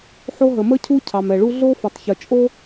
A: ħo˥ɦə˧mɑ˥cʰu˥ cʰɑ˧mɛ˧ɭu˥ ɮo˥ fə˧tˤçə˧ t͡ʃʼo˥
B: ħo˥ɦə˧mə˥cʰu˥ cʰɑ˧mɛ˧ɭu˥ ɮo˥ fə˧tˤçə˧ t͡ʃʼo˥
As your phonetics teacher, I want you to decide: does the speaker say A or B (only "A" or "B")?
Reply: B